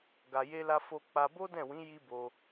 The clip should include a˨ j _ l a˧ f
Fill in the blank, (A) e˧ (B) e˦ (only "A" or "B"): A